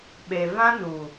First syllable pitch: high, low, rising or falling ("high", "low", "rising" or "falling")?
low